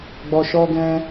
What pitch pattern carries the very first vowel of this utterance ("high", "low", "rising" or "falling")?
low